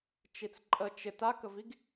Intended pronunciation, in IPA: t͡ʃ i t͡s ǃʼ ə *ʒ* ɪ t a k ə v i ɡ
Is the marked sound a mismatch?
yes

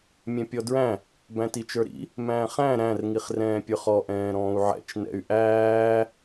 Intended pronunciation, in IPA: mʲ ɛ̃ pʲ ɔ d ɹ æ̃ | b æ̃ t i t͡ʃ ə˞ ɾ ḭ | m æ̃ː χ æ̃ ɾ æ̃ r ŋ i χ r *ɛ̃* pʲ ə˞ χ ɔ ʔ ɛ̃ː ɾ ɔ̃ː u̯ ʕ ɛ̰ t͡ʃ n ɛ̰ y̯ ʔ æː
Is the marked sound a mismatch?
yes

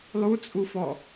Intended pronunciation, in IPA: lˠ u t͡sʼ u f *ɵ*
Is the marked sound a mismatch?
yes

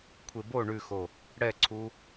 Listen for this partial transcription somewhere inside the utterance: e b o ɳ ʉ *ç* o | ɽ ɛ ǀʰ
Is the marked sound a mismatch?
yes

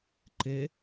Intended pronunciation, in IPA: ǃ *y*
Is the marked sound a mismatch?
yes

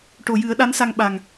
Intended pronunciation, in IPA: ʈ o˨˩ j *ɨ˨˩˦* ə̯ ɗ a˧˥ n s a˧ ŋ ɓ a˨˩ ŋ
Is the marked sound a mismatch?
no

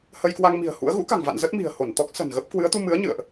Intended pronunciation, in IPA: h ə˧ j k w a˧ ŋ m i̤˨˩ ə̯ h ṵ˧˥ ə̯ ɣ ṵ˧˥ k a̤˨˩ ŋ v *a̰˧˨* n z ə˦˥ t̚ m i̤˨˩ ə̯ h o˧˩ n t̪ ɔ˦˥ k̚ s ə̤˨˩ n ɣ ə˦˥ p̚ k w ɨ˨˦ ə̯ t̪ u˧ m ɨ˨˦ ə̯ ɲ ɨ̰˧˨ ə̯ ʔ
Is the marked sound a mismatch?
no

